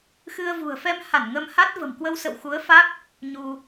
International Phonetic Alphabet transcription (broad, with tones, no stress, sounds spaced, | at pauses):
x ɨ˧ ə̯ v ṳ˨˩ ə̯ f ɛ˧ m h a˧˩ n ŋ ə˧ m h a˦˥ t̚ v ə̤˨˩ m k w ə˧ w s ə̰˧˨ w x u˨˦ ə̯ f a˦˥ k̚ | ɲ u˧